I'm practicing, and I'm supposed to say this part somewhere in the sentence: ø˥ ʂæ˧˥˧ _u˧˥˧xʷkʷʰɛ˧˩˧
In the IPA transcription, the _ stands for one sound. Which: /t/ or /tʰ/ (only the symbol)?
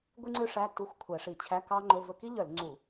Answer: t